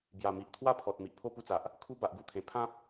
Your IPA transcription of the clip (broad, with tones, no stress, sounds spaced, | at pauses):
b j a˨˩ m i˨ ʔ t̪ʰ w a˥˧ pʰ ɔ˨ t̚ m i˨ ʔ pʰ o˥˧ p u˦ t͡s a˨ ʔ | kʰ u˦ b a˨ ʔ ɡ u˧ t̪ʰ ẽ˨˩ pʰ ã˦ p̚